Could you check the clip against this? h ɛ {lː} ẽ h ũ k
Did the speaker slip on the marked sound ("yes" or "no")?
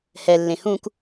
no